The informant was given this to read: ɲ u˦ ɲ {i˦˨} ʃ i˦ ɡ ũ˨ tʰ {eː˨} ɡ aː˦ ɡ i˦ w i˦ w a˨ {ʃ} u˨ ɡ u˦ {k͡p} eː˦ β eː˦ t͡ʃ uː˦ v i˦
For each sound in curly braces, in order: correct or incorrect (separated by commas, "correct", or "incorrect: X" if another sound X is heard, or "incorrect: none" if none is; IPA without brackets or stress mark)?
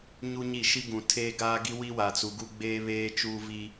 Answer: correct, incorrect: eː˦, incorrect: t͡s, incorrect: ɡ͡b